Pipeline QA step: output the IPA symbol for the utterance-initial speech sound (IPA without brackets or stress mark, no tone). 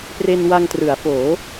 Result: p